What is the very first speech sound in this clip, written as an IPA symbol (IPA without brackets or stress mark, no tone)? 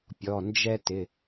pʲ